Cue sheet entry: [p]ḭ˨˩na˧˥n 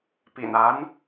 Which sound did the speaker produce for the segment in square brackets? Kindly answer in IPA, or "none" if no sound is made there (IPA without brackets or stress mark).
p